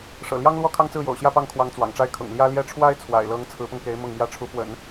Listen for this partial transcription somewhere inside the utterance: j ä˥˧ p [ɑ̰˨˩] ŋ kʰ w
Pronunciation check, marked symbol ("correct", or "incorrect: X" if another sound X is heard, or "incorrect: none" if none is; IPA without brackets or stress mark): incorrect: ɑ˥˩